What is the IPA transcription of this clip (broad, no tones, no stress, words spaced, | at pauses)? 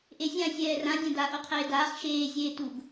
ʔezʲã sʲɛːrã dʲãda ʔoqʰeːdaːχ ʃeː zʲeːtuɡ